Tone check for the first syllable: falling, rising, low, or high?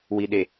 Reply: low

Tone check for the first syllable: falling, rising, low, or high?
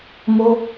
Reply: high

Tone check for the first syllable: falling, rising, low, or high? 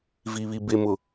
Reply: low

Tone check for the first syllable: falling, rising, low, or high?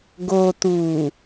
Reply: low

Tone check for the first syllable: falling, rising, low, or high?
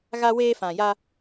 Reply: high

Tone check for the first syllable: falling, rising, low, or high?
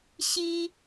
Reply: high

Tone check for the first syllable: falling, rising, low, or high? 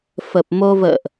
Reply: low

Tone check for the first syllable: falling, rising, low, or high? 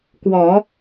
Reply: low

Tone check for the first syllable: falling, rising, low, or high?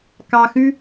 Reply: low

